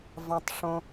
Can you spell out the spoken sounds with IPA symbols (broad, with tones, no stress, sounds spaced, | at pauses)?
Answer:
v ɑ̃˩ tˤ ʂ õ˩